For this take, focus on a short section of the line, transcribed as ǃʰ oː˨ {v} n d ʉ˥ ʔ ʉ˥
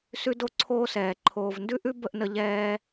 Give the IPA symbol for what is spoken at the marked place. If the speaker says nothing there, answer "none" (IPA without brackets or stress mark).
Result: v